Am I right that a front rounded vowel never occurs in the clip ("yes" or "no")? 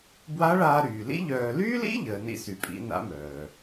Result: no